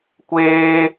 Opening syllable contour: high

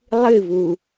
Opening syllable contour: falling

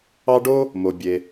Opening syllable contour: high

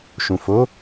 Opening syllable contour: low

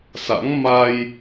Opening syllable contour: rising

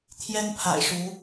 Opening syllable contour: high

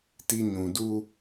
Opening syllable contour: high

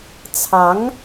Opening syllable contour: rising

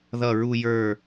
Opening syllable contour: falling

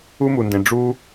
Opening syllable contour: high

